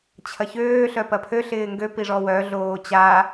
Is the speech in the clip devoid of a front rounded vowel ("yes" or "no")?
no